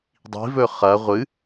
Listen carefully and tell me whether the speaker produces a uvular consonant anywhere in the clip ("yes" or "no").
yes